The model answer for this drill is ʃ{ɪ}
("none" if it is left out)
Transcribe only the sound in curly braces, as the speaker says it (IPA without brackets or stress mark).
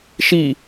i